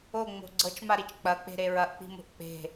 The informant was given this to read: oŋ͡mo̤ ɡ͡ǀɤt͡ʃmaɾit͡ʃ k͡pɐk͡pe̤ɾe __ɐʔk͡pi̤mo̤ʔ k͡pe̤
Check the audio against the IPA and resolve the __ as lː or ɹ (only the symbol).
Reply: ɹ